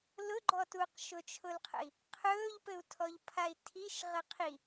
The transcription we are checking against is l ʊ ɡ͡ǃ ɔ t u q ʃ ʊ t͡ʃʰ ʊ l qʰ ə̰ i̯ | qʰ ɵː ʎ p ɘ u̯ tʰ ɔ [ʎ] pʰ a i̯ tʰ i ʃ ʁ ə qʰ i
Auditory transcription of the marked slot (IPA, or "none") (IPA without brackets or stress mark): ʎ